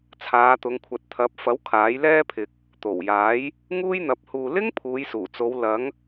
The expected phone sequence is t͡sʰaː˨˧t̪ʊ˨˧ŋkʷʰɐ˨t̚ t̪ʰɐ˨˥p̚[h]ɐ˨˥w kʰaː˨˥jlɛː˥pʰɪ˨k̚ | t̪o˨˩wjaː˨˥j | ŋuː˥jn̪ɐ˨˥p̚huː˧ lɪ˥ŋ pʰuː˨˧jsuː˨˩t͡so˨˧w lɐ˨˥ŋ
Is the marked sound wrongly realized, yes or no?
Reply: yes